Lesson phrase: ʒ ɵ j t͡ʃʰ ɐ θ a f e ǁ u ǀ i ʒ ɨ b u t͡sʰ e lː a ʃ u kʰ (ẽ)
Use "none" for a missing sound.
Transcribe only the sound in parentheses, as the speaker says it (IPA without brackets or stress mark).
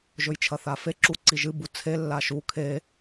e